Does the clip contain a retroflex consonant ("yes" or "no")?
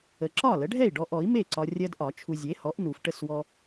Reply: yes